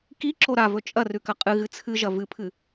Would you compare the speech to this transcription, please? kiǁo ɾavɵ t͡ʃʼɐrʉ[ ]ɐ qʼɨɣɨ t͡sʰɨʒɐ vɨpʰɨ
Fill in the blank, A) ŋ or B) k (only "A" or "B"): B